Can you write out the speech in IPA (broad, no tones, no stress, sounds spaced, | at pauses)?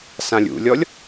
s ã lʲ ṵ lʲ ɔ lʲ